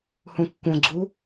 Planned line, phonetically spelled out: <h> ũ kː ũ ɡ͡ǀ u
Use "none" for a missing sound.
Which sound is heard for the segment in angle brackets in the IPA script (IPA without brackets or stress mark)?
h